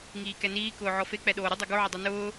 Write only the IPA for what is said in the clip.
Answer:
ŋ iː k ɛ n iː k ʊː ʕ ɔ f e k͡p ɛ ɗ oː ɾ ɪ dˤ o ɡ o ʕ ɪ dˤ o n ʊː

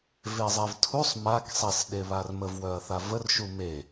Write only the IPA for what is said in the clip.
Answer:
v e zˤ e v tʰ u sˤ m a k sˤ e s ɗ e β a r m ə v w œ ɐ̯ θ a v ə r ʃ u m e

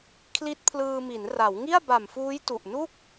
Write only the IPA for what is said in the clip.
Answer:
kʰ l i˦˥ t̚ pʰ l ɯː˧ m i˩˦ n r a˩˦ w ŋ i˥˩ a̯ b a˨˩ m f uː˦˥ j t u˨˩ ʔ n u˥˩ k̚

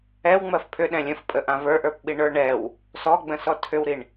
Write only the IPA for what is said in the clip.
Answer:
ɛ w ŋ͡m ɜ f pʰ ʏ ɗ ɛ̃ lʲ ə̃ f pʼ ə ʔ ã v ə˞ ʔ ə˞ p ɓ i ɳ ə˞ ɳ ɛ w | s ɔ ɡ͡b ə̃ s ɔ tʰ ʏ w ɾ i ɳ

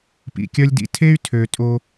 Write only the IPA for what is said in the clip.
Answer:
p ḭ˩ kʲ œ˦ lʲ d ḭ˨ tʰ e˥ y̯ tʰ ø˨ tʼ o˦

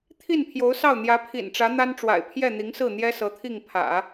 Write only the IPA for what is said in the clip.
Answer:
t̪ʰ i˥˩ n pʰ j o˧˥ ʊ̯ s ɑ˥˩ ʊ̯ n̪ j ä˧˥ pʰ ḭ˨˩ n ʈ͡ʂ ä˧˥ n̪ a˥ n ʈ͡ʂ w a̰˨˩ ɪ̯ pʰ j ɛ˥˩ n̪ i˧˥ ŋ s ɹ̩˥˩ n̪ j ɛ˥ s ɤ˧˥ t̪ʰ i˥˩ ŋ pʰ ä̰˨˩˦

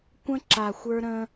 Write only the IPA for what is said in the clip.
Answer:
kʷ ə̃˦ ǁ a˨ xʷ ə˞˦ ɾ ə̃˦

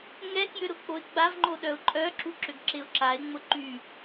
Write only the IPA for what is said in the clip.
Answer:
ŋ ɛ k j ʏ ɾ ʊ k͡p o ɪ̯ ɡ͡b a v ŋ͡ǃ o ɗ œ ʊ̯ ǃʼ œ ǁ u ǁ ʏ ɡ ǁ ɪ ʊ̯ ǁ a ɪ̯ ŋ͡m ʊ ǃ y

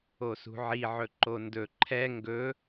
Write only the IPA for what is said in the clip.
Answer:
o s ṳ ʕ i ʕ ɵ ǃ o n d ɵ ǃʰ ɛ ŋ ɡ ɵ

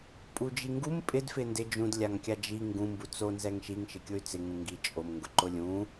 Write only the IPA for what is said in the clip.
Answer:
pʼ u d͡ʒ i ŋ ɡ u m pʼ ɪ d f ɪ n d ɪ d͡ʒ ũ d lʲ a ŋ kʲ a d͡ʒ i ŋ ɡ ũ m b u t͡s o n z ɛ ŋ ʃ i ŋ ʃ ɪ kʲ ʊ y̯ t͡s ɪ ŋ ũ ŋ ɡ i t͡ʃʼ o m ŋ ɡ ʊ ǃ ʊ lʲ ũ

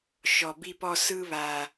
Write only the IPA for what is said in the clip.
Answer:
ʃ ɔ˨ b i˧ p ɔ˧ s ɯ˧ β a˨

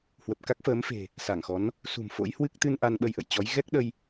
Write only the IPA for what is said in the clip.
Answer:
h w ə˨˩ p̚ k a˦˥ k̚ f əː˨˦ m f e̤˨˩ | s a˧˩ ŋ x ɔ˨˦ n | s ṳ˨˩ m f o̰˧˥ j h w ɨ˦˥ k̚ t̪ ɨ˧ n ʔ a˧ n ɓ ə˧ j ʔ ə̰˧˨ j t͡ɕ ɔ˨˦ j ɣ ɛ˦˥ k̚ ɗ ə˧ j

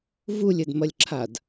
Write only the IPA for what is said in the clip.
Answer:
v u lʲ ɘ d m ɐ lʲ ǁʰ a d

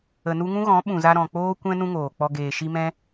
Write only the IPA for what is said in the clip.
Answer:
ə˨ n u˧ ŋ ũ˦ ɣ ɔ̃˨˦ ɓ ũ˨ z a˧ ɾ ɔ̃˨ k͡p oː˦ kʷ ɛ̃˦ n ũ˦ ŋ oː˨ k͡p ɔ˧ ɡ eː˨ ʃ i˧ m ɛ̃˦

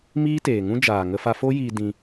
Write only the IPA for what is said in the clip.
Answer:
m iː˦ t eː˨ ŋ ũ˦ d͡ʒ aː˨ ŋ ə˧ f a˧ f o˦ j iː˧ d ĩ˧

